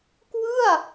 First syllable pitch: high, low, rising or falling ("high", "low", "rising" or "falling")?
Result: falling